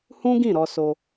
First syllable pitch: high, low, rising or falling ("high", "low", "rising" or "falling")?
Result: high